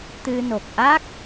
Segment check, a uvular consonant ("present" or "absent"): absent